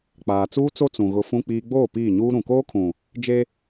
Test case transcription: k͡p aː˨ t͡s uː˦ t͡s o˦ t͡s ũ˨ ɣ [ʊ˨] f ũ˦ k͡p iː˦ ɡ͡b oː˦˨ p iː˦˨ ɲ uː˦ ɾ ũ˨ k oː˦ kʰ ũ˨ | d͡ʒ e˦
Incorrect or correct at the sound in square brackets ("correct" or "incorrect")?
correct